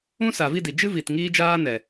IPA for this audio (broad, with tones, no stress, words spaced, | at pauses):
ũ˦ sa˨vi˦˨di˨ d͡ʒɨ˦vi˨t ŋiː˦d͡ʒaː˦ nɛ˨